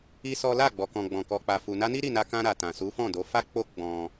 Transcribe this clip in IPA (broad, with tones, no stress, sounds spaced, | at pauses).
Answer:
i˦ s ɔ˦ l a˦˨ ɡ͡b ɔ˨ k ɔ̃˨ ɡ͡b ɔ̃˨ k ɔ˨ k͡p a˨ f u˨ n a˧ n i˦ ɾ i˦˨ n a˧ k ã˧ ɾ a˨ t ã˨ s u˨˦ f ɔ̃˦˨ d o˨˦ f a˦ k͡p o˦ ɡ͡b ɔ̃˧